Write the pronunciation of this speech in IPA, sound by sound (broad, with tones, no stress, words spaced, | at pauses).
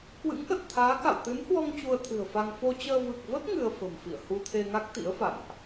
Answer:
kwɨ̰˧˥ŋʔə˨˩t̚t̪ʰaː˨˦ka̰˧˨w t̪ɨ˨˦nhwɔ˧ŋ t͡ɕu˧ə̯t̪ʰɨ̤˨˩ə̯fa˧ŋ fo˧ t͡ɕəː˧ vɨ˨˩k̚və˦˥t̚ ŋɨ˧ə̯fə̤˨˩mfḭ˧˨ə̯ hu˧t̪ʰe˧ŋa˦˥k̚t̪ḭ˧˥ə̯ fa̰˧˨nʔ